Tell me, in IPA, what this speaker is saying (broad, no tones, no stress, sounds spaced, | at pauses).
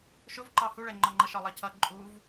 ʃ ʊ v ǃ ɑ h u ɭ ɛ ŋ͡ǃ ɒ ŋ͡ǃ ʌ ʃ ɒ lˠ ʌ cʰ ʌ ǃʼ u v